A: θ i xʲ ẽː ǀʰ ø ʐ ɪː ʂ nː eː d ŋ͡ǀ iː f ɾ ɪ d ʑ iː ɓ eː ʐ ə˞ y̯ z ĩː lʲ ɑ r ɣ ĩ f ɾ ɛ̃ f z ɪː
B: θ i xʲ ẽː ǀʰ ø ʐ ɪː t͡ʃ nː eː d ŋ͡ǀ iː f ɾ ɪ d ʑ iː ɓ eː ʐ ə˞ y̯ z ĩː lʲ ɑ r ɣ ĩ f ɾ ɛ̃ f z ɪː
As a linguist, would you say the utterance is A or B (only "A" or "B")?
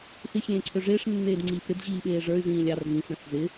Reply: A